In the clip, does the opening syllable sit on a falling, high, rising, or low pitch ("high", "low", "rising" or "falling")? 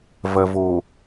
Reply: low